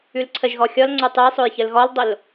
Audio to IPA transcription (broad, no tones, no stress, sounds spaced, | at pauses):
ʉ l ǀʰ ə ʒ ɣ ɔ xʲ ɔ l ŋ͡ǀ o tˤ ʉ j sˤ o j ç ə l ɣ ɔ l dˤ o l